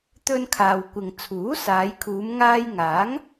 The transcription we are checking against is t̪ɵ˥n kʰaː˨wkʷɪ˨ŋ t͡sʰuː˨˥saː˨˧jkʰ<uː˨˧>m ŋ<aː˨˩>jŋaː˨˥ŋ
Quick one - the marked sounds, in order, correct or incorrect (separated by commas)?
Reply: correct, incorrect